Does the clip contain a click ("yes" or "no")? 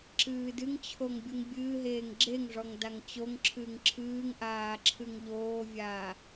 yes